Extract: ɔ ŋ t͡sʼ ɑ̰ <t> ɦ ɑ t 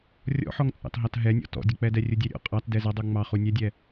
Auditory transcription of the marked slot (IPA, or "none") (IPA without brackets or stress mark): t